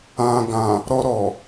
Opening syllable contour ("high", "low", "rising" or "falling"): low